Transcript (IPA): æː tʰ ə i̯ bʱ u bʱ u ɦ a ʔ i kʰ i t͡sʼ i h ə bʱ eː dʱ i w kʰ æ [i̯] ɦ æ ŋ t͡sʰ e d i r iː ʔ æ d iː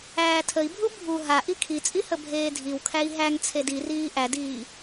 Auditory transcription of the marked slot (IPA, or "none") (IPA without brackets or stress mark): i̯